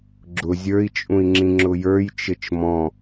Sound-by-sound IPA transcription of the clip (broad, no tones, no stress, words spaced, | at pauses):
ɡ͡ǁʊ zʲə˞i̯t͡ʃʼũi̯ŋ͡ǁĩ ŋ͡ǁʊjə˞j t͡ʃɘt͡ʃmɔ̃